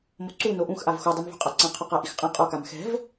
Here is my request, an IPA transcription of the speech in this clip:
m o ǀ u n o ʔ ũ x ʔ a v x o dˤ i m v ṳ qʼ a ǀ ã qʰ ɔ q a ʔ i x qʼ ã qʼ ɔ k a m x ɛ̤ v

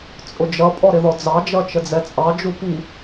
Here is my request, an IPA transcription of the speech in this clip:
t͡sʼ ʊ d͡ʒ ʌ pʼ ɔ ɾ ɪ ð ɔ d͡z ɑ d͡ʒ ʌ t͡ʃ ə d͡z ɛ t͡sʼ ɑ d͡ʒ u p i

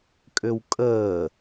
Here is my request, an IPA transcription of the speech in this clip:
kʼ ʏ w kʼ əː

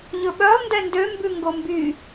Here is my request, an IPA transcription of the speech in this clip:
ʎ ɵ ɓ œ lˠ n d ɛ n d ø m b ʉ ŋ ɡ o m b y

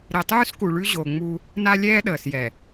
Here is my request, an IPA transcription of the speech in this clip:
ɾ ɛ˨ tˤ ʉː˦ s k u˨ ɭ ʉ˦ ʑ o˨ ŋ͡m u˦ | n a˦ lʲ ɛː˦ ɗ əː˨ s j ɛ˨

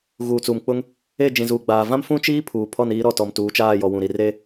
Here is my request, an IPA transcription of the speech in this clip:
ɣ uː˨ t͡s uː˨ m k͡p ʊ˦ ŋ | e˦˨ d͡ʒ ĩ˨ z uː˨ ɡ͡b aː˨ v ã˦ m f ũ˦ t͡ʃ iː˦ pʰ uː˨ pʰ ɔ˦˨ n iː˦ ɾ ɔ˦˨ t ɔ˨ m t uː˨˦ t͡ʃ aː˦˨ j ɔ˨ w ũ˨ ɾ i˨ r e˦

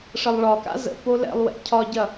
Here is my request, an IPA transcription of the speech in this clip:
ʂ ə lˠ ɭ ɒ k a̰ z ə̰ p o l ɛ̰ lˠ w ɛ̰ cʰ ɒ ɟ ɐ

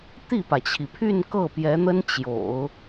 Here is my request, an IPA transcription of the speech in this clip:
t̪ i˥˩ p ä˩ t͡ɕʰ i˩ pʰ y˥˧ n k ɤ˥˩ p j ɛ˧˥ n̪ ə˥ n t͡ɕ j o̰˨˩˦ ʊ̯

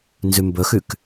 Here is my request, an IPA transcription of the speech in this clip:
n z ʉ m b ɵ x ʉ k

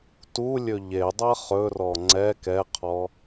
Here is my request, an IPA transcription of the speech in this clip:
t u lʲ ɵ ʎ e dˤ ɜ χ ɵ r ɔ ŋ͡ǀ ɛ k ɛ qʰ ɔ

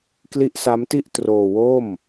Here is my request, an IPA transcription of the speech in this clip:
k l i˦˥ ʔ s a˦˥ m t i˥˩ ʔ t r oː˧ w o˥˩ m

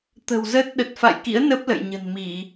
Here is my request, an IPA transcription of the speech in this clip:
t̪ ə̤˨˩ w z ə˦˥ t̚ ɗ ə˨˩ t̚ f a̰˧˨ j k ḭ˧˥ ə̯ n ə˦˥ p̚ l ə̰˧˨ j ɲ ə̤˨˩ n m i˧˩˨

